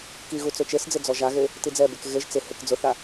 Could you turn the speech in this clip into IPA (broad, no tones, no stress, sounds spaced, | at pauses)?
k i ɣ u t͡s ʊ t͡ʃ e s d͡z ɪ d͡z ɔ ʒ a ɣ e | t i d͡z ɛ b e k ɣ e ʒ t͡s ɪ h e k d͡z ʊ θ a